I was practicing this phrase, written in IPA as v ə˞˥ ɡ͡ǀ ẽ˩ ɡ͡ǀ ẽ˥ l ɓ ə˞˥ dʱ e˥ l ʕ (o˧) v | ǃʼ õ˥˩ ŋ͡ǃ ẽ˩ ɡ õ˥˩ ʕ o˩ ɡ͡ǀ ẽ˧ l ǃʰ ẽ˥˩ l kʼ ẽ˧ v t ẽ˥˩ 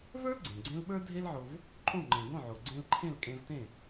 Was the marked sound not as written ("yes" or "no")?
no